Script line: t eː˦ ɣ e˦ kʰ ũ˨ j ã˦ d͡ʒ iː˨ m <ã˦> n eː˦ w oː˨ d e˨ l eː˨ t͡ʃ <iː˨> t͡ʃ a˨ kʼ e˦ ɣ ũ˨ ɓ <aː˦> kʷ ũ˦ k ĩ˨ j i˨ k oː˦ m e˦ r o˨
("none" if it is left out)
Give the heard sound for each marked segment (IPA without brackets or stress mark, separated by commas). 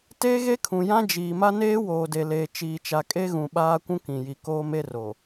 a˦, iː˨, aː˦